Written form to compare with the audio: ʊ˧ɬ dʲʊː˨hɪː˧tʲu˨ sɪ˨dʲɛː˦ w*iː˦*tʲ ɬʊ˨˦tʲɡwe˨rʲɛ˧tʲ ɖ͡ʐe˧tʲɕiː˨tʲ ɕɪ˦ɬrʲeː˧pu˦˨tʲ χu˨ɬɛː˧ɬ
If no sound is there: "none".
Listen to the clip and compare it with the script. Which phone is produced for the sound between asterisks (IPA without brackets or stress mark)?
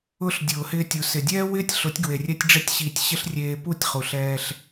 ɪː˦